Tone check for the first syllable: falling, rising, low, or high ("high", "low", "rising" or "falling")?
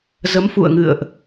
rising